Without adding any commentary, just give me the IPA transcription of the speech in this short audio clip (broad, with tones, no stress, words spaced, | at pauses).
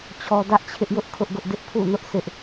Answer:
t͡ɕʰɔ˦ dä˦ʔt͡ɕʰɪ˦ʔjʊ˦ʔ kʰʊ˦ʔɡʊ˦ʔdɪ˦ʔ pʰṵ˦˨nʊ˦ʔ sɪ˦ʔ